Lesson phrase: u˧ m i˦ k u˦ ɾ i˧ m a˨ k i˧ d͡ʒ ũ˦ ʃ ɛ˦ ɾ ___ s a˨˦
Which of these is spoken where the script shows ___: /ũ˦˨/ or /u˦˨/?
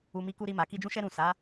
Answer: ũ˦˨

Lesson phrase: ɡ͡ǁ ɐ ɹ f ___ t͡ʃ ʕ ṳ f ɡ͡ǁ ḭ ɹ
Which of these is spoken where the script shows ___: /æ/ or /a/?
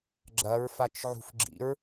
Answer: a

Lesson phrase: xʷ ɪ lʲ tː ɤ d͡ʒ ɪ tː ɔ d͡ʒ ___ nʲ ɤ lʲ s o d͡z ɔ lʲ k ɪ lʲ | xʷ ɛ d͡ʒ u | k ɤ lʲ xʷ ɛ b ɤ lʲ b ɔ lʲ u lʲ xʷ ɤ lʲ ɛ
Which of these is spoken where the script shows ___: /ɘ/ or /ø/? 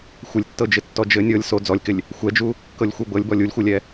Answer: ɘ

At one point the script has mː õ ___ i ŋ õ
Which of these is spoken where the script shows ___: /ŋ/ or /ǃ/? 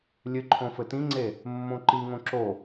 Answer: ǃ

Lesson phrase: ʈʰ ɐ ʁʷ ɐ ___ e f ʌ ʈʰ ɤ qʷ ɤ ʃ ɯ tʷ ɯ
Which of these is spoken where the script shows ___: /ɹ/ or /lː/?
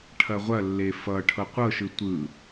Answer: lː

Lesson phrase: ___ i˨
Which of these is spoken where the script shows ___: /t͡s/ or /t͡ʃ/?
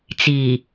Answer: t͡s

